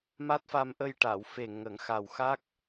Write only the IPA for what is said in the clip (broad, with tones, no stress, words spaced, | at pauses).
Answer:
ma˦˥t̚fa˧mʔə˧j ʈa˨˩˨wfe˨˩ ŋə˨˩˦ŋxa˨˩w xa˦˥k̚